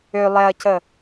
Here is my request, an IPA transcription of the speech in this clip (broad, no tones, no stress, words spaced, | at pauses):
ø lˠɛɐ̯cə